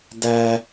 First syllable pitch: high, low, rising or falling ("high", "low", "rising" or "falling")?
high